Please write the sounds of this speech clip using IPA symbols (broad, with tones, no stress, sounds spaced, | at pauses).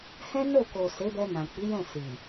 h ɛ̃˦ n o˦˨ k o˨ s e˨˦ b ɛ˧ n ã˨ k͡p i˨˦ j ɛ̃˦˨ s i˨